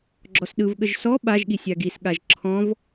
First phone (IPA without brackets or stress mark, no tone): ɡ͡ǁ